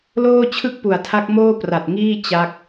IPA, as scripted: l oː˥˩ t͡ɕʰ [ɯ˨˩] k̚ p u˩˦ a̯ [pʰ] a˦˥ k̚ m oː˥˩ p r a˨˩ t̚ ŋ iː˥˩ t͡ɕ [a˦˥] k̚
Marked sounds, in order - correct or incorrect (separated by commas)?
incorrect, incorrect, correct